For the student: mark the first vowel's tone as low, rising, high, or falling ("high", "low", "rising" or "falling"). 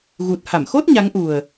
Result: low